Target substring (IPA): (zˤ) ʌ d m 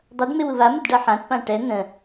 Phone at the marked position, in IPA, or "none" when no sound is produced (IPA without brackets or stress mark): dˤ